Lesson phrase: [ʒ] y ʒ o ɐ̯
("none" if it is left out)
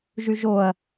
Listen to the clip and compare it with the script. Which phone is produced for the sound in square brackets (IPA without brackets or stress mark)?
ʒ